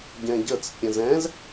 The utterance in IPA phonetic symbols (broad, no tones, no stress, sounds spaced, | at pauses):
ɟ ɛ̃ ɟ ə t͡s pʲ ə̃ z ɛ̃ z